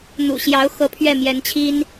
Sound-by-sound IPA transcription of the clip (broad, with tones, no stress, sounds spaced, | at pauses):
n̪ ṵ˨˩ ɕ j ɑ˧˥ ʊ̯ x ɤ˧˥ pʰ ɥ ɛ˥˩ m j ɛ˧˥ n t͡ɕʰ i˥ n